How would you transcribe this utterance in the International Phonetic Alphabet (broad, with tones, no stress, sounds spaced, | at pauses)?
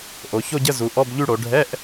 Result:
ʔ o˩˧ ç o˥˧ ɟ ə˧˥˧ z u˩˧ ʔ ɔ˧˥˧ b ʎ y˥˧ ɽ o˩˧ ɖʱ ɛ˧˥˧ ʔ